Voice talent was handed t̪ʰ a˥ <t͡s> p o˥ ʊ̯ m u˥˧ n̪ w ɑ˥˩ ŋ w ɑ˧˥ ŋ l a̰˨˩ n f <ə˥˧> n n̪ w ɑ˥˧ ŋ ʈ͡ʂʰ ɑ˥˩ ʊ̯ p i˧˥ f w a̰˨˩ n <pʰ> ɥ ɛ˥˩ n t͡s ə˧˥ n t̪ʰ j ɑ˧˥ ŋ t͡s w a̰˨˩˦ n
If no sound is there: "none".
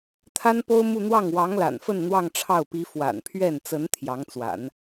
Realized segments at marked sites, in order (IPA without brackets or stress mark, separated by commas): n, ə˥˧, pʰ